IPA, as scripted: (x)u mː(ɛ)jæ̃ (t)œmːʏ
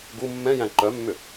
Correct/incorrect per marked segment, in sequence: incorrect: ɡ, incorrect: ɛ̃, incorrect: ǃ

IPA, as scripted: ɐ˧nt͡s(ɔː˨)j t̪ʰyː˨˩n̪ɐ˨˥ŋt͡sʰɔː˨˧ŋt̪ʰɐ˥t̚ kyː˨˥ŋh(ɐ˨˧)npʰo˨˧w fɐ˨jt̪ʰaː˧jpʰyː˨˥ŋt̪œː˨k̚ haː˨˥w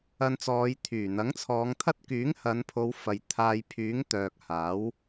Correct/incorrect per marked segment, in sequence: incorrect: ɔː˨˧, correct

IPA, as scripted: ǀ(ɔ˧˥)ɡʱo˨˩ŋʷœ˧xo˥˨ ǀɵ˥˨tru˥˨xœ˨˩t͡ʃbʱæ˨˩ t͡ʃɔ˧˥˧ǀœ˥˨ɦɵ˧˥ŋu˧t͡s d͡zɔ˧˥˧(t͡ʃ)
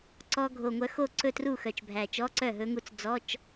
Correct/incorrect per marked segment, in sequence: incorrect: ɔ˧, correct

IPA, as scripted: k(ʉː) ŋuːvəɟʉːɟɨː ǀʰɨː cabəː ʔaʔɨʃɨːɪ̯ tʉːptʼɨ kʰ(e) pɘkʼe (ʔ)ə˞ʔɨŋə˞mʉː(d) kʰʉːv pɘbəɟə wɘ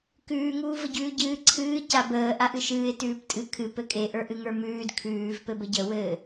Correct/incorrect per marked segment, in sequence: correct, incorrect: ɨ, correct, correct

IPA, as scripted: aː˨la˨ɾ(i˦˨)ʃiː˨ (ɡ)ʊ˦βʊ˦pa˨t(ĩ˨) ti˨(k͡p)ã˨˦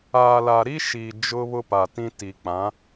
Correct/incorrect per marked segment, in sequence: incorrect: i˦, incorrect: d͡ʒ, incorrect: ĩ˦, correct

